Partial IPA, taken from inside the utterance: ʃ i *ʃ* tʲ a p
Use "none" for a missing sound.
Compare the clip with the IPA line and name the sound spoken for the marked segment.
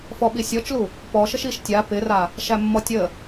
ʃ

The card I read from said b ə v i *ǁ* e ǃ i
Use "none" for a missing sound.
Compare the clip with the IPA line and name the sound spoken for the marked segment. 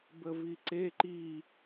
ǀ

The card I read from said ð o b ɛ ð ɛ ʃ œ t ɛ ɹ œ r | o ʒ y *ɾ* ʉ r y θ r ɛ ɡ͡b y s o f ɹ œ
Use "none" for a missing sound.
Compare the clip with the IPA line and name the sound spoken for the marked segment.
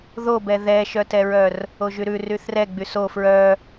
ɾ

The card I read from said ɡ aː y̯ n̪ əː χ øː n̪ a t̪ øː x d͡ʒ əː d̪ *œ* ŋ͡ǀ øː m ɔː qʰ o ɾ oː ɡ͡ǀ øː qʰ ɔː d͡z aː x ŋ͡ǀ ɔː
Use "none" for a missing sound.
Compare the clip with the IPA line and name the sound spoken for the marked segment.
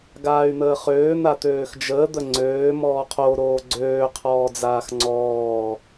ə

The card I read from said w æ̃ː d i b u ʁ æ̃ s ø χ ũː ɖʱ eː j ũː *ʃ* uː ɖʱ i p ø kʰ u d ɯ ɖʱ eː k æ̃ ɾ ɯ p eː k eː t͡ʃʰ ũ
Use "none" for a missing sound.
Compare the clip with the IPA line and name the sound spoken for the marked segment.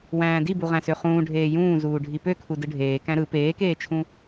z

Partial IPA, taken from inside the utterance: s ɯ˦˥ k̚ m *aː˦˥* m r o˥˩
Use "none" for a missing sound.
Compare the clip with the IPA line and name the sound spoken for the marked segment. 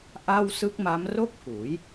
a˦˥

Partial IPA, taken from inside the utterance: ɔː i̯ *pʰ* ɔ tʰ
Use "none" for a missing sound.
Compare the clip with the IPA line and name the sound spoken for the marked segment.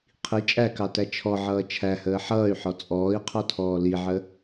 qʰ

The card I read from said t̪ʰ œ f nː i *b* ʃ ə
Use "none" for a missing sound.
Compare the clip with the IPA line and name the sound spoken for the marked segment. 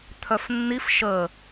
f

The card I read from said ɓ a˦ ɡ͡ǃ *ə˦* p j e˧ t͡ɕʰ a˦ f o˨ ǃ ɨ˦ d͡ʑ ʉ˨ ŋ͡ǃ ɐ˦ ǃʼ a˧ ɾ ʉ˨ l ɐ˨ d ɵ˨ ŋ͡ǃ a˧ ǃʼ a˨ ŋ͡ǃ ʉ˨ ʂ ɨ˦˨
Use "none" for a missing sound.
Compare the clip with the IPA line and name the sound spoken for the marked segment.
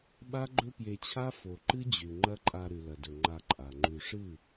ɵ˦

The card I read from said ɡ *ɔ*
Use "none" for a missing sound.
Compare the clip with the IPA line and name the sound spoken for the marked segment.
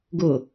ʊ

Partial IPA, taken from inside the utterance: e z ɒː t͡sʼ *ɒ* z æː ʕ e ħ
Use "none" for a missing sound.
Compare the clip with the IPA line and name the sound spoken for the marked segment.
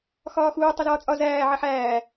ɒ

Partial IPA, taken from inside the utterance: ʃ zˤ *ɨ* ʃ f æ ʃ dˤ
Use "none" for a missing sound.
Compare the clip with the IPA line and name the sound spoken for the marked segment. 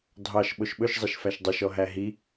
i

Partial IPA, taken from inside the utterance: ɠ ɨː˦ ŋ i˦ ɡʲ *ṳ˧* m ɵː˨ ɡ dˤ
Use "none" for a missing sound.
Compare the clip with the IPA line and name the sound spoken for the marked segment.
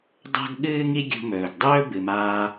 ṳ˧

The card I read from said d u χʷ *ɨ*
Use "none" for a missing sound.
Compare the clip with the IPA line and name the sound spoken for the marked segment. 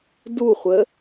ə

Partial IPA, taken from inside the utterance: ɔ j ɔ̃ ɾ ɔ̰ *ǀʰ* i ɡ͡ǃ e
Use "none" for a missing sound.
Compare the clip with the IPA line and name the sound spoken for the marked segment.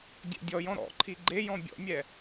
ǃʰ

